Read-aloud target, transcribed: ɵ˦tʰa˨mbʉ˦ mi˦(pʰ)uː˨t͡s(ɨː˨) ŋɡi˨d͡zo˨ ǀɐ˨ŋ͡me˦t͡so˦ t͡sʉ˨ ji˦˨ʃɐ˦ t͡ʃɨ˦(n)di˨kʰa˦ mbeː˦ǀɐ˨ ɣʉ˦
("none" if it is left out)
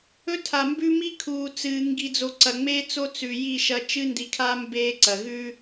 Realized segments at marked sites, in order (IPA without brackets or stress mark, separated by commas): kʰ, ɨː˨, n